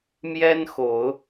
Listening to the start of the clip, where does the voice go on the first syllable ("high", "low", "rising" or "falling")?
high